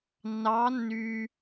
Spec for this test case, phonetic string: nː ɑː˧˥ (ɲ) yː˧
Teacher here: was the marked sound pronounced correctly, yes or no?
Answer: no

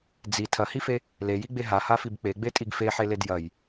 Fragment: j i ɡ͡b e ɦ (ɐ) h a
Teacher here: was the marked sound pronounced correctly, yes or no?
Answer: no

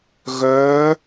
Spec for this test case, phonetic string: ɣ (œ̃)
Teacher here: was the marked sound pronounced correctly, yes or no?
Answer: no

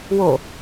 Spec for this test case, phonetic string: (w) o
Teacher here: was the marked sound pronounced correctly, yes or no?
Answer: yes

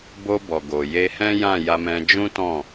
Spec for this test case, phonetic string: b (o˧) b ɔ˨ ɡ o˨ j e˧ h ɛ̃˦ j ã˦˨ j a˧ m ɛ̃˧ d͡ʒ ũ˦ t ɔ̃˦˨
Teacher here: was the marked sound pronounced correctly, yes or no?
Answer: yes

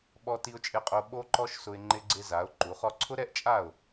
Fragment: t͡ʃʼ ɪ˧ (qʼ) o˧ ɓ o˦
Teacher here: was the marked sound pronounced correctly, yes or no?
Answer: yes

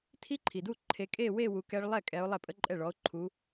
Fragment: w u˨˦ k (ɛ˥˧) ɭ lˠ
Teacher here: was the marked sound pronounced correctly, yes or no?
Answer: no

